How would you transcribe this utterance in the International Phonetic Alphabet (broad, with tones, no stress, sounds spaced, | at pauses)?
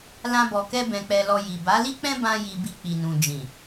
l ã˦ b ɔ˧ k ɛ˦ b ɛ̃˧ k͡p ɛ˧ l ɔ˧ j i˨ b a˨˦ l i˦ k͡p ɛ̃˦ b ã˦ j i˧ b i˧ k͡p i˨ n ũ˨ d͡ʒ ĩ˨